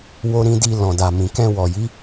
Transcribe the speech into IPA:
w o˧ ɾ ĩ˧ d i˧ l ɔ̃˨ d a˨ m ĩ˨ k ɛ̃˧ w ɔ˨ j i˨˦

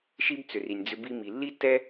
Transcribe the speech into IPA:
ʃ i˦ b t͡s ʏ˨ r i˨ nʲ d͡z ʏ˧ b i˧ m i˨ lː i˦ tː ɛ˦

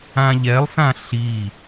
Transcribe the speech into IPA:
ã ʎ ɛ lˠ s ã ɬ i

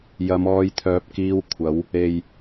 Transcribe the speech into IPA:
j ɐ˨˧ m ɔː˧ j t̪ʰ œː˨˥ p̚ k iː˧ w kʷʰ ɐ˨˥ w | e˨ j

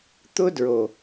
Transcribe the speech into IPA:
t̪ ʊ˦ d ɹ o˨

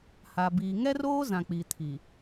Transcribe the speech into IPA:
h a˨ b iː˨ ŋ ɛ˦ r oː˦ z ã˨ k͡p i˨ tʰ i˨

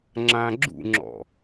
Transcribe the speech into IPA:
ŋ͡ǁ ã ɡ͡ǁ ṵ ŋ͡ǁ ɔ̰

